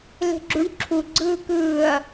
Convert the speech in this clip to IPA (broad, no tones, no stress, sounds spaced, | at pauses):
l e̤ ɡ͡ǁ u ɳ ǁʰ u ɡ͡ǀ ɯː k ɯː ɐ̯